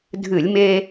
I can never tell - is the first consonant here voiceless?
no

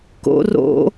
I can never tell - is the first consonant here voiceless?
yes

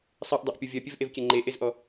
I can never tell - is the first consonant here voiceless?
yes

